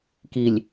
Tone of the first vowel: low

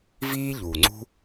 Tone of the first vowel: high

